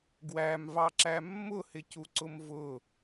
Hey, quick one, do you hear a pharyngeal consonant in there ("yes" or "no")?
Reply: no